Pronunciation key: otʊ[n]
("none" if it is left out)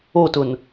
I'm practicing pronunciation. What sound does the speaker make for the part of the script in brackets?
n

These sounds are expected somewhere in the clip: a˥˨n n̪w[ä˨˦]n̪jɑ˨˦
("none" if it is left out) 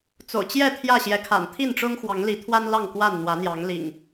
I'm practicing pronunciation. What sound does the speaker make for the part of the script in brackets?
ä˨˦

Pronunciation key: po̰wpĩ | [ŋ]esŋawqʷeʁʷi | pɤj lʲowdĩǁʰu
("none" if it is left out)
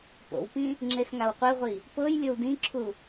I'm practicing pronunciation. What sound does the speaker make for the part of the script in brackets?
ŋ͡ǁ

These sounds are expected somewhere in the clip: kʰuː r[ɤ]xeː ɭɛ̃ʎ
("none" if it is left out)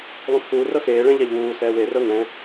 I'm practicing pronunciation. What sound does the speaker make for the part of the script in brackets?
ɤ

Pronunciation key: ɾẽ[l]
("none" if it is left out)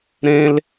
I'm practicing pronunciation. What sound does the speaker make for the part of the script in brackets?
l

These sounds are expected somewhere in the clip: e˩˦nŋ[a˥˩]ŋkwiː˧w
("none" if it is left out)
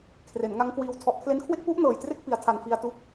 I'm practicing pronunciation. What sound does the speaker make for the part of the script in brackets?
a˦˥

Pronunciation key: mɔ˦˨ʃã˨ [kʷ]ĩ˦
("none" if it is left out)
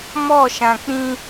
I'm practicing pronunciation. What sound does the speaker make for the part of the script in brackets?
k͡p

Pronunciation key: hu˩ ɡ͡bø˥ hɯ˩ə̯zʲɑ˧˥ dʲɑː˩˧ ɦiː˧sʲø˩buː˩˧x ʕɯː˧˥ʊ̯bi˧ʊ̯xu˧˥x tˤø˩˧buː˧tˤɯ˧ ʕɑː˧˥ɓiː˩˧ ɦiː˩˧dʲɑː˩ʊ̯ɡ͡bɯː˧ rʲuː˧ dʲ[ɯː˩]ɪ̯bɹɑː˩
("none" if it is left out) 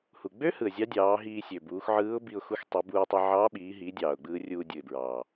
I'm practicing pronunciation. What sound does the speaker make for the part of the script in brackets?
ɯ˩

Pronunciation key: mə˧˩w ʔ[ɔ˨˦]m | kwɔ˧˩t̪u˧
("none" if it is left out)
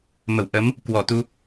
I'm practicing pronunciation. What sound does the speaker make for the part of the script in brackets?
ə˨˦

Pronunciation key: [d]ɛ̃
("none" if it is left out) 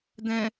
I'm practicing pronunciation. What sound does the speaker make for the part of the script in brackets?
d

